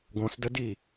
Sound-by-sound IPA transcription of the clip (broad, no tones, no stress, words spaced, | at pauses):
ɡõsdədi